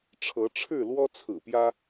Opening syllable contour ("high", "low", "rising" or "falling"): rising